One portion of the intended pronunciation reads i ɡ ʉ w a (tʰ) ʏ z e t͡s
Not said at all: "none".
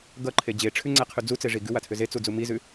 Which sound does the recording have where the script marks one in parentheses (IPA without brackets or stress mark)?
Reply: tʰ